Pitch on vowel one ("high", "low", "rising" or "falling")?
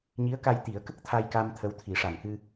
rising